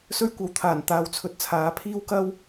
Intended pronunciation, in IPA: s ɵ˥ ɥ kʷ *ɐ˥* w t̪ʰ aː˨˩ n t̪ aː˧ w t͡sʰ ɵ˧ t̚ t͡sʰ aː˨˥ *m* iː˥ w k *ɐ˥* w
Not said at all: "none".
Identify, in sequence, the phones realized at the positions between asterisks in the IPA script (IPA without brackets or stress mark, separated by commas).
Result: ɐ˨˥, pʰ, ɐ˥